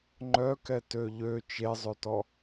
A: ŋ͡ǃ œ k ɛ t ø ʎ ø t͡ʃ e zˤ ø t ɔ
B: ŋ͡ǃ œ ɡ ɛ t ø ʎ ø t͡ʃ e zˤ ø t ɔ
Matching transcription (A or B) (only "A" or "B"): A